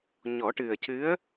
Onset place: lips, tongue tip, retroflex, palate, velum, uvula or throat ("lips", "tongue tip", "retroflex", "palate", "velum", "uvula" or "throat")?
palate